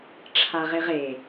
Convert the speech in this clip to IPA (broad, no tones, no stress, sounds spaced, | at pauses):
ʈ͡ʂʰ a ʁ e ʁ e